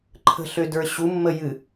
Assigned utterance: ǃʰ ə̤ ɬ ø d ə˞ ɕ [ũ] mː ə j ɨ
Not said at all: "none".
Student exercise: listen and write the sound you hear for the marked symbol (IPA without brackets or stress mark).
u